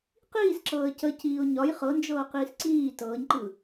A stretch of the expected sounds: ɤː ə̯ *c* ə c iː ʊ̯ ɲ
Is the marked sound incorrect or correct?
correct